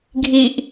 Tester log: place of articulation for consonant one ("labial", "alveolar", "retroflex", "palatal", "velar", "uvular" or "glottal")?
velar